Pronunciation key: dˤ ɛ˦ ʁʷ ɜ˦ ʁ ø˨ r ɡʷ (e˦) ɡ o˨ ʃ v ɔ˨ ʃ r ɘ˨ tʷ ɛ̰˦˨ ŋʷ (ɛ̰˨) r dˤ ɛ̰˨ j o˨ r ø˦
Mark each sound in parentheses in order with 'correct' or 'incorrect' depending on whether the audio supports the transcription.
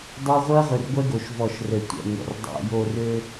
incorrect, correct

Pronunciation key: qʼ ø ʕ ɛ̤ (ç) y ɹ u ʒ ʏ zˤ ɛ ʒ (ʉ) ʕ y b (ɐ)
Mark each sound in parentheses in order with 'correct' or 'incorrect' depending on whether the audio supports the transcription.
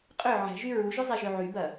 incorrect, incorrect, correct

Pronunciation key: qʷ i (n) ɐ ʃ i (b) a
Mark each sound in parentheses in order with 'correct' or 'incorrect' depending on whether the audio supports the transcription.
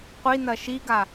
correct, incorrect

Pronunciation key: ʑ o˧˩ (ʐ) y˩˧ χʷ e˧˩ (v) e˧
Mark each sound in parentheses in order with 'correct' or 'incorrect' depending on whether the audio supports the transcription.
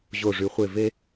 correct, correct

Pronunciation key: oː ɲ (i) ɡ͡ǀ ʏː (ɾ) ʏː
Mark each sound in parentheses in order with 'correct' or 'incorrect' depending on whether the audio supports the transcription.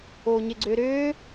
incorrect, correct

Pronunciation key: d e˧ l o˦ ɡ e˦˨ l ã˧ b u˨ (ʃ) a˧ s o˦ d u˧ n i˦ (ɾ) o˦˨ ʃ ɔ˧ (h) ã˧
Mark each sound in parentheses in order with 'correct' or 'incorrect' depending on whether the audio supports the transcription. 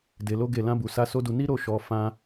incorrect, correct, incorrect

